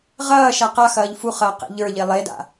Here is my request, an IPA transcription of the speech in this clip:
ʁ ɐː ʃ a q a x ɐː ʎ f u χ ɐː q ḛ ʎ ə˞ ʎ e lˠ e d a̰

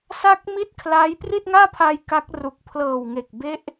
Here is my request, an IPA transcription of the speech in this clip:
s a˦˥ k̚ m i˦˥ t̚ kʰ l aː˦˥ j p r i˥˩ t̚ ŋ aː˥˩ pʰ a˧ j k a˦˥ k̚ r u˨˩ k̚ pʰ l ɤː˨˩ w ŋ e˨˩ k̚ b e˦˥ ʔ

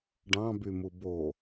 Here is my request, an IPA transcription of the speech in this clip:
ɖ ɑ̃ b y m u b o

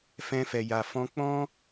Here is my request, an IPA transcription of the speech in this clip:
f ɛ̃˧ f ɛ˨ j a˨ f ɔ̃˧ k͡p ɔ̃˦

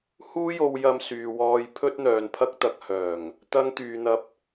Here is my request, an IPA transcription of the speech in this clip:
h uː˥ j o˧ w j ɐ˧ m s yː˨ w ɔː˧ j pʰ ɵ˥ t̚ n̪ œː˨ n pʰ ɐ˥ k̚ t̪ ɐ˧ k̚ h œː˨˩ ŋ | t̪ ɐ˧ ŋ t̪ yː˨ n̪ ɐ˧ p̚

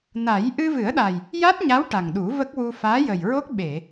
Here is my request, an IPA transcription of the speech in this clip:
n a˨˩˦ j ʔ ɨ˧ v ɨ˨˩˦ ə̯ ɗ a˨˩ j | j a˦˥ t̚ ɲ a˧˥ w ʈ a˨˩ ŋ ɗ u˨˩˦ v ə˦˥ k̚ w u˧ f aː˧˥ j ə˨˩ j ɹ o˦˥ k̚ ɓ e˨˩˨

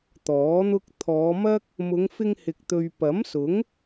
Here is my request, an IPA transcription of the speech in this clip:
t̪ ɔː˨˥ n̪ ʊ˥ k̚ t̪ʰ ɔː˨˧ m ɐ˥ k̚ | m ʊ˨˧ ŋ f ɪ˧ ŋ h ɪ˨ k̚ t̪ ɵ˨ ɥ p ɐ˨˥ m s ʊ˨˥ ŋ

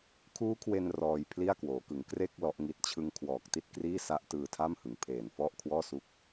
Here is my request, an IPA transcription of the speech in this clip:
kʰ uː˦˥ kʰ w e˧ n r ɔː˧ j pʰ l i˥˩ a̯ k w oː˩˦ k ɯ˩˦ ŋ k r e˥˩ k̚ l ɔ˦˥ ʔ ŋ i˦˥ t̚ t͡ɕʰ ɯ˧ ŋ kʰ w ɔː˨˩ k̚ t i˥˩ t̚ k r iː˥˩ s a˦˥ ʔ t ɯː˧ tʰ a˥˩ m h ɯ˩˦ ŋ pʰ eː˨˩ n f ɔ˥˩ ʔ kʰ w ɔː˥˩ s u˥˩ k̚

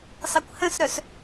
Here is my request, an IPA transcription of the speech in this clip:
sˤ e kʷ h ə̃ s ɾ œ s

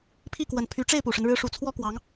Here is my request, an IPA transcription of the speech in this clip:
pʰ i˥˩ k w ə˨˩ n pʰ y˧˥ ʈ͡ʂ e˥˩ ɪ̯ p u˨˩ ʂ ə˦ n ɻ ɻ̩˧˥ ʂ u˨˩ t͡sʰ w ɔ˥ k w ɑ˧˥ ŋ

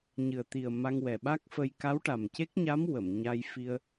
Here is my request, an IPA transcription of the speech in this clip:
ɲ ɨ˨˩ ə̯ t̪ i˨˩ ə̯ m a˧ ŋ w ɛ˨˩ ɓ a˦˥ k̚ f ə˧ j k a˧˥ w ʈ a˨˩ m c e˦˥ k̚ ɲ a˧˥ m w ə˨˩˨ m ɲ a˧ j f i˧ ə̯

